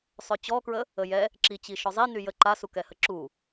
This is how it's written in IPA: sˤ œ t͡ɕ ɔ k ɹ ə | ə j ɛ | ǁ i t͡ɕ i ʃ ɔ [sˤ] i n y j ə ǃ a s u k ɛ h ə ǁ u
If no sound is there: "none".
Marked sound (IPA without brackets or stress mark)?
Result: zˤ